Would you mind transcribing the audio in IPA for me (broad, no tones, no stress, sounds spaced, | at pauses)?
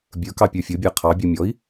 bʲ ə˞ k ɑ pʲ ə˞ fʲ ʊ bʲ æ qʰ ɑ bʲ ɔ mʲ ɔ i̯